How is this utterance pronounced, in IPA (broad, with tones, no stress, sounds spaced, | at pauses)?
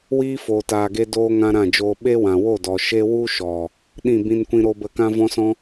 w iː˦ f oː˨ t aː˨ ɡ e˧ d oː˧ ŋ ã˧ ɾ ã˦˨ d͡ʒ oː˧ ɓ e˦ w ã˨ w o˦˨ d ɔ˨ ʃ e˦ w u˦ ʃ ɔ˨ | ɗ ĩ˦˨ b ĩ˦ n kʷ ĩ˦ ɾ o˧ b ə˧ k ã˦ v ɔ̃˦ s ɔ̃˦